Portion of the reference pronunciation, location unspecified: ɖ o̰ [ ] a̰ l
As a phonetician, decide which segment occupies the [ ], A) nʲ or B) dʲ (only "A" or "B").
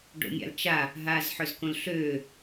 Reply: A